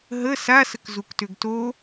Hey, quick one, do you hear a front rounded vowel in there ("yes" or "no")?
yes